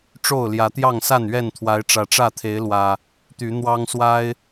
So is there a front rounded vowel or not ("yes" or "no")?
yes